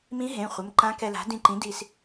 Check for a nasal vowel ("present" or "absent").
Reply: present